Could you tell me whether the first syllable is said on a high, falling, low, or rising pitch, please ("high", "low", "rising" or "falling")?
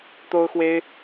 high